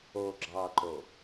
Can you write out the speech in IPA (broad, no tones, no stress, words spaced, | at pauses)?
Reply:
o ɡ͡ǁɑǃo